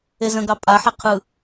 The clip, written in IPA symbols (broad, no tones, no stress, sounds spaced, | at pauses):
e z ə̃ ɡ ɑ pʼ a ħ ɛ qʰ ɯ